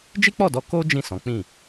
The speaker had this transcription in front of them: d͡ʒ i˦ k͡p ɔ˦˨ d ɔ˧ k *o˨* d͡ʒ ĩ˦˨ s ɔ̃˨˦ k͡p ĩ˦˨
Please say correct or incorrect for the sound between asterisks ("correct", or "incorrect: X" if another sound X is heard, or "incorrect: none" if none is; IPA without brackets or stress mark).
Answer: incorrect: o˦